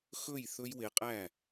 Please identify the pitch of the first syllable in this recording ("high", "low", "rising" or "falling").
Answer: falling